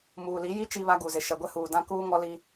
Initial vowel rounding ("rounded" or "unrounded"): rounded